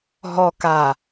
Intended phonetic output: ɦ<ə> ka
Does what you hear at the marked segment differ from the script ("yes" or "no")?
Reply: yes